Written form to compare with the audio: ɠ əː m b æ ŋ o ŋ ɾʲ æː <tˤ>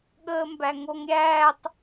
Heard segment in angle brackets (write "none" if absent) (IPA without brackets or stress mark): tˤ